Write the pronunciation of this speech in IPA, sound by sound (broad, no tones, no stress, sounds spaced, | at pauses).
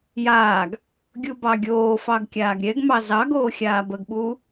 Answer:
j aː ɡ | ɡʲ u b ɑ ɡʲ oː f ɑ ɡ kʲ aː ɡ ɾʲ ɛ ɡ m ɑ z ɑ ɡ oː xʲ aː b ə ɡ ɓ uː